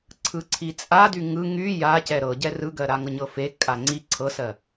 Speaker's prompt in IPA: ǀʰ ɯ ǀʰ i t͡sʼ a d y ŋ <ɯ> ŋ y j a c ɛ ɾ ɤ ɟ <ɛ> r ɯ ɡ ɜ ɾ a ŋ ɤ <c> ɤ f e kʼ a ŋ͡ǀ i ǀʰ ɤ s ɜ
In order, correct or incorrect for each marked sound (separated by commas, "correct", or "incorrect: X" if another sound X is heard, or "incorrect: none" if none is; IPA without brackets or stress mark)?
correct, correct, incorrect: ɲ